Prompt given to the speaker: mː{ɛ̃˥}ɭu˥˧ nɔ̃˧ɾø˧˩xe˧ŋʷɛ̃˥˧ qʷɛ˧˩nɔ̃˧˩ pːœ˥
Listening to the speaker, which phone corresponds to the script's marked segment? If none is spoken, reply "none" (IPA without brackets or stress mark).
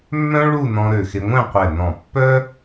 œ̃˥